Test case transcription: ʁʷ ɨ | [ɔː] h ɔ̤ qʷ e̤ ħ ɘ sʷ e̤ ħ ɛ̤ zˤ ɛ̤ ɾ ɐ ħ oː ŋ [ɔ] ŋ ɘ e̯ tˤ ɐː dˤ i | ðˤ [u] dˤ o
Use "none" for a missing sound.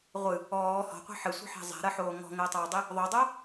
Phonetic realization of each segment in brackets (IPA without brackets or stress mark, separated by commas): ɔː, ɔ̤, o